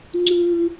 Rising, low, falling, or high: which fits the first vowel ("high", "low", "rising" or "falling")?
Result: high